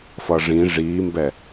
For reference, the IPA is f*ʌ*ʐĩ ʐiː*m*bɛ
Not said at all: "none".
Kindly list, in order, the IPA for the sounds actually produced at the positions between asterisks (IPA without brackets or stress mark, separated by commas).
ʌ, m